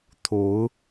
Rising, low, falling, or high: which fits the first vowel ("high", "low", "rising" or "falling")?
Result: rising